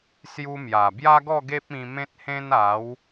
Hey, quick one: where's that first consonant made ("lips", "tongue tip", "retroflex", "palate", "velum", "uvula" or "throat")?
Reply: tongue tip